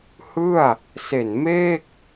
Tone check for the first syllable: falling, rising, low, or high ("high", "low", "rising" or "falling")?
falling